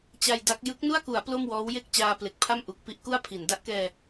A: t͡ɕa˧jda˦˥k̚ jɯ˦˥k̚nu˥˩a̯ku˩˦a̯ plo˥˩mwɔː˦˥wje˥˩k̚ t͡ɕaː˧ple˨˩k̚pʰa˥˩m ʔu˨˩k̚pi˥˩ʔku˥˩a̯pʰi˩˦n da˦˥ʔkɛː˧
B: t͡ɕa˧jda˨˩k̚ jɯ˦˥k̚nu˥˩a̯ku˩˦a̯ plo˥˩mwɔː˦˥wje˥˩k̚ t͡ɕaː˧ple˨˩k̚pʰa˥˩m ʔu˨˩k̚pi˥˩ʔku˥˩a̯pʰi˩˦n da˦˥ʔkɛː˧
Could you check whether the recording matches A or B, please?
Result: A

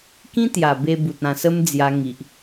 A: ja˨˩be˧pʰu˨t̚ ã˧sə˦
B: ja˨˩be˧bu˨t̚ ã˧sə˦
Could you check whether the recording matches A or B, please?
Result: B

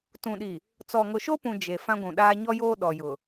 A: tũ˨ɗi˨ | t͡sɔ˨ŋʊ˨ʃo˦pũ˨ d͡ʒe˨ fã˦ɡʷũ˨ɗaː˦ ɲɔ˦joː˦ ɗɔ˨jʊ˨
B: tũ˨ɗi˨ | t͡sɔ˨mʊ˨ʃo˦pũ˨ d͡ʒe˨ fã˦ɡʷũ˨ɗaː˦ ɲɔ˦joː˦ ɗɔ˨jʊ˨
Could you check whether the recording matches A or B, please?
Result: A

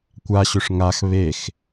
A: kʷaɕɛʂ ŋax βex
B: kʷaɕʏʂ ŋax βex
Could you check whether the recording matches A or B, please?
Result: B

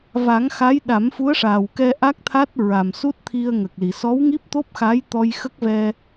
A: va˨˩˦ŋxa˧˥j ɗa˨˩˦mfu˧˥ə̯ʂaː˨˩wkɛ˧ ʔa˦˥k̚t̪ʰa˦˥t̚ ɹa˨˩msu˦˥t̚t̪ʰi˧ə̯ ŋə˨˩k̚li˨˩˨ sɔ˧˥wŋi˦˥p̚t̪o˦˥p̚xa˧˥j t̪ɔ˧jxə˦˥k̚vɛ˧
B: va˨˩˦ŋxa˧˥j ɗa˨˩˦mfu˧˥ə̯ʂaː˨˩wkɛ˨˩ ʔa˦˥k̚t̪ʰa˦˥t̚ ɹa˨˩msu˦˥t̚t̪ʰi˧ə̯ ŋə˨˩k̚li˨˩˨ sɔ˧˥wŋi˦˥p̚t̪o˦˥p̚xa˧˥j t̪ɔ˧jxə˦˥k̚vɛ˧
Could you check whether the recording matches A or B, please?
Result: A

